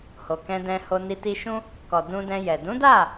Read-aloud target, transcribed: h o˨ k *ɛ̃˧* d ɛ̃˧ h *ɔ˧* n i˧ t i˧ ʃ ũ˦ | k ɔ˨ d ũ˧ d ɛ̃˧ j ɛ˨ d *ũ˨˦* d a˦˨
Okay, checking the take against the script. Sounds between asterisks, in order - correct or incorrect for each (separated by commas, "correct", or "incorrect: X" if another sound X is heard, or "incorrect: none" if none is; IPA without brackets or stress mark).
correct, incorrect: o˧, correct